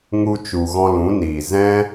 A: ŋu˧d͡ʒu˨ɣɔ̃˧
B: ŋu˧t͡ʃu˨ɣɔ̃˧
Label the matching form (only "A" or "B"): B